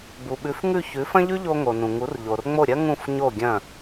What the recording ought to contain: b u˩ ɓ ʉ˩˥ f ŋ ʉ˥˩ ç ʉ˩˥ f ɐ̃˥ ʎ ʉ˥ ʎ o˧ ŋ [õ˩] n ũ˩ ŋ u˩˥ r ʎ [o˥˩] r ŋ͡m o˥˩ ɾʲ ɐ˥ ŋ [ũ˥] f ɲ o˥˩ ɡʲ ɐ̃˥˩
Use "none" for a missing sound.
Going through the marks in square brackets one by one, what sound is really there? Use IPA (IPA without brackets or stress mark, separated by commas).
o˩, o˩, ũ˥˩